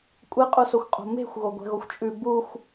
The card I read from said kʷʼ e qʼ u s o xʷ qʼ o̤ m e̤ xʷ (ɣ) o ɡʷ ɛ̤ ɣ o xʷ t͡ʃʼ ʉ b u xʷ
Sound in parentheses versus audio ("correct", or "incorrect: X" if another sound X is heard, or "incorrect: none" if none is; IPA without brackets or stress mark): correct